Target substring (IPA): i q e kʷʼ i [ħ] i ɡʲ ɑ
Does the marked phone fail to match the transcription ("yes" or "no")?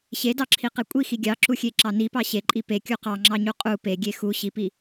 yes